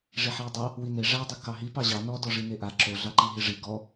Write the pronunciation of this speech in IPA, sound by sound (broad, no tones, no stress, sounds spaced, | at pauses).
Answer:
ʐ i ħ i w dˤ ɑ | w i n e ʐ a dˤ a ɡ k ɑ ɦ i p ɑ ʑ ɑ n ɔ d ɔ ʐ i n e ʔ a ǁ o ɮ ɑ ǃ i ɦ i ʐ i ɡ ɔ